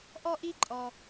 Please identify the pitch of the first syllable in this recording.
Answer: high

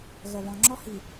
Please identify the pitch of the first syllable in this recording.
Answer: low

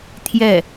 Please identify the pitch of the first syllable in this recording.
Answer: falling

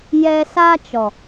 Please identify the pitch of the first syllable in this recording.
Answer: high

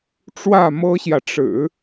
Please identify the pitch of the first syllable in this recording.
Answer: falling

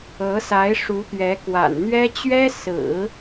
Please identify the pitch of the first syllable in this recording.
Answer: rising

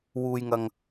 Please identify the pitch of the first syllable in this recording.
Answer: low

